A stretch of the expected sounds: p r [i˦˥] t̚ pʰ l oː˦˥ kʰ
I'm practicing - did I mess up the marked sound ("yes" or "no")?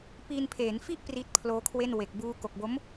no